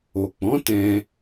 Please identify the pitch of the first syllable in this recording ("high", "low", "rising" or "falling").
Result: low